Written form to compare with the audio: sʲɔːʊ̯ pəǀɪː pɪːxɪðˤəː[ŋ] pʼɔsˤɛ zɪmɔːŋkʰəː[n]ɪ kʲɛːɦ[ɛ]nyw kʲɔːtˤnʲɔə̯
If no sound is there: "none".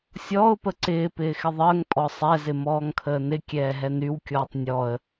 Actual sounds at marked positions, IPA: ŋ, n, ɛ

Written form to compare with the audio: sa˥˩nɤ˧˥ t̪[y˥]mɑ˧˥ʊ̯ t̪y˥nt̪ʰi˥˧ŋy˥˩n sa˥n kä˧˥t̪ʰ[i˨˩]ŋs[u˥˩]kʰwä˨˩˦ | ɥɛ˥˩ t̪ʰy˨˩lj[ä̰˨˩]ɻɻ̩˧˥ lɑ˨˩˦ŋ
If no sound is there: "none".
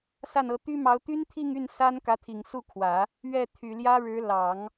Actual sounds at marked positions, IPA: y˥, i˨˩, u˥˩, ä˥

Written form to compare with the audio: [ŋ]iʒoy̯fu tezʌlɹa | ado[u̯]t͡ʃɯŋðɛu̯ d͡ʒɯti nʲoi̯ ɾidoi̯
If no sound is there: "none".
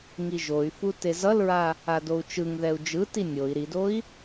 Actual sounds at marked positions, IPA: ŋ, u̯

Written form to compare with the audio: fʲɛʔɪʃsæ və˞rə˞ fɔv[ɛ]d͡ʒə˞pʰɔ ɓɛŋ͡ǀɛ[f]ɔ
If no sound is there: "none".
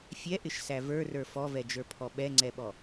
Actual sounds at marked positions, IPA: ɛ, ɓ

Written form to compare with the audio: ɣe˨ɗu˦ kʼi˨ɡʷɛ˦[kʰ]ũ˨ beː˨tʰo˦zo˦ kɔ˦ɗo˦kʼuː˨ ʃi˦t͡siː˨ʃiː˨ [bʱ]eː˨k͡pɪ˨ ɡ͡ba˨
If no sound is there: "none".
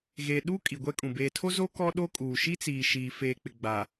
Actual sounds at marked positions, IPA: kʼ, f

